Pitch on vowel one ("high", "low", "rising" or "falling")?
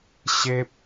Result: high